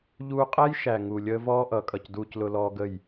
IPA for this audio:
ʎuː˧qʼæ˦j ʃæ˨ŋu˨ lʲəː˦vɔː˦ʔʌ˨˦kʼʌ˨c duː˧clʊ˧lɔː˧ ɡə˦˨j

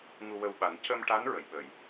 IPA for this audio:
ŋu˧wə˧wɓa˨˩˦n cə˧mʈa˧˥n ɹə˨˩˨jɓə˨˩˨j

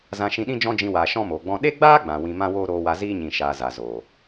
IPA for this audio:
zã˧ʃĩ˧ɗĩ˦ d͡ʒɔ̃˦d͡ʒĩ˧waː˨ ʃɔ̃˦moː˨ɡ͡bɔ̃˦ ɗe˦ɡ͡baː˦ ɡ͡bã˨wĩ˧ mã˦woː˦ɾoː˧wa˧ ziː˦ɲĩ˨ ʃaː˨ za˨zoː˨

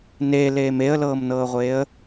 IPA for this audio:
neleːm eə̯lɤːmnɤːʁʷeːə̯

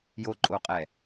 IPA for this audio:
joǃʼoqʼɛ

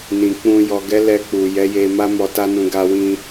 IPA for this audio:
nĩ˨k͡pũ˧ jɔ˨ɡɛ˨˦ lɛ˧k͡pu˨jɛ˨˦je˧ ma˦mɔ˧ta˦nũ˧ ɡa˧wĩ˧

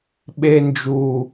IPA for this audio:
ɓe˧nd͡ʒu˨

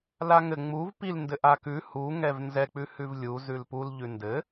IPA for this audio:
laŋɘ ŋ͡muv pilndɘ ʔakʉ hu ŋɛvnzɛk͡pʉhʉv lʲu zʉlpul ʎʉndɘ

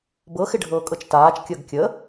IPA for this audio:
bɤxɪɖʱɤːkʼɤt͡ʃ taːt͡ʃkʲəːɡ kʲə

